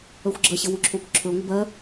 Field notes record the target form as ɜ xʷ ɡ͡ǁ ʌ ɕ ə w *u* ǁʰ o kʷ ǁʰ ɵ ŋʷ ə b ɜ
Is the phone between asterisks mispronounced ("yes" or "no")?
no